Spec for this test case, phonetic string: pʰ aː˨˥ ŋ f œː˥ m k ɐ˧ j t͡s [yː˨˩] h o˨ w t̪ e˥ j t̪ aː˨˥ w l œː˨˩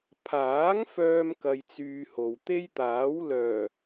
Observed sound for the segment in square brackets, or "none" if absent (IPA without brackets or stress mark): yː˧